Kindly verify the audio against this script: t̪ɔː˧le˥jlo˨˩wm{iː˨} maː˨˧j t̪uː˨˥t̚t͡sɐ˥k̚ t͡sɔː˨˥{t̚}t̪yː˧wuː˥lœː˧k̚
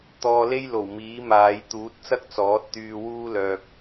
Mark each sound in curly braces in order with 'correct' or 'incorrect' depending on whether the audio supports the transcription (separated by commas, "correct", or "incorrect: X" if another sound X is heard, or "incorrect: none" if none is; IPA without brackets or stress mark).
incorrect: iː˨˥, correct